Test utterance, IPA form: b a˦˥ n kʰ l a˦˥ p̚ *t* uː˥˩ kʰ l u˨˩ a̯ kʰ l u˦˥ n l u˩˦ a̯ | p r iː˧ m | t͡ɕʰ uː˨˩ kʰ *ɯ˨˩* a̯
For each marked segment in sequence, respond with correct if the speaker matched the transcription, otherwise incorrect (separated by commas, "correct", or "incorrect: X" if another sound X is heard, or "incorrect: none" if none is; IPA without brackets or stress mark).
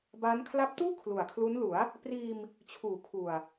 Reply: correct, incorrect: u˨˩